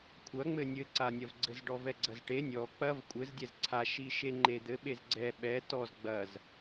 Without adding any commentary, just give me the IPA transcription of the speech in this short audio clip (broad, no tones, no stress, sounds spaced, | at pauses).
kʷʰ ɐ ŋ͡m ɘ nʲ ɘ ǀ a nʲ ɐ v ɡ͡ǀ ɘ z ɖ ɔ v ɛ ɡ͡ǀ ɐ z ʈ e nʲ ɔ k͡p ɐ v kʷʼ ɘ z dʲ ɛ z ǀʰ a ʃ i ʃ e ŋ͡ǃ e d̪ ɘ ɓ e z ɡ͡ǀ ɛ ɓ ɛ t ɔ z ɡ͡b ɐ z